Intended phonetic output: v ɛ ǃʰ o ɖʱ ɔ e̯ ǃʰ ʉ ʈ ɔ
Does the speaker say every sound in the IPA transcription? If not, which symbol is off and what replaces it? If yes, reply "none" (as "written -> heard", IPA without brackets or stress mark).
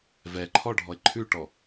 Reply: o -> ɔ